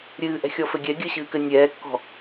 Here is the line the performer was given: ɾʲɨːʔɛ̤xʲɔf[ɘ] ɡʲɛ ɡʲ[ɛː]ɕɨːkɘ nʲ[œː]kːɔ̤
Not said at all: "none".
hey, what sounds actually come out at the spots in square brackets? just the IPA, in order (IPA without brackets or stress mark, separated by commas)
ɘ, ɘː, ɛː